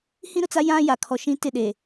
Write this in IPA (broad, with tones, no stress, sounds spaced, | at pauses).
h ĩ˦ ɾ ʊ˨ t͡s a˦ j ã˦ j a˨ kʰ ɔ˨ ʃ ĩ˦ t ɪ˦˨ ɗ e˨